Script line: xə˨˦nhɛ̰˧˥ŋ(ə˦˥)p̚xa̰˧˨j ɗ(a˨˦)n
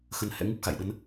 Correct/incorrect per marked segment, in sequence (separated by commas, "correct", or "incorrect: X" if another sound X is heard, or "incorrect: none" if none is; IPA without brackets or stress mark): incorrect: ɨ˦˥, incorrect: ə˨˦